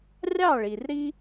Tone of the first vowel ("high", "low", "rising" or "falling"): falling